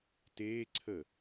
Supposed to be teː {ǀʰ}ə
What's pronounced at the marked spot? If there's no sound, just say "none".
ǀʰ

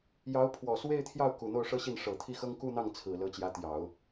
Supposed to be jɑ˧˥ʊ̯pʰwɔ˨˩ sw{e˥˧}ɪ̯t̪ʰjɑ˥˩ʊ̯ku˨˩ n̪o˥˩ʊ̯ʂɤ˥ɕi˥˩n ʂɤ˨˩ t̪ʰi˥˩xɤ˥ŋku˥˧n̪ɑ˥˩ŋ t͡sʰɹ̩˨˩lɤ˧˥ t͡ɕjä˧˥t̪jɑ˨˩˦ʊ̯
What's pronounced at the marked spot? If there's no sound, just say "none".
e˥˧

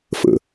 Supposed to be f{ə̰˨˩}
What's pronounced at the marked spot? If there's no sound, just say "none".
ə̰˨˩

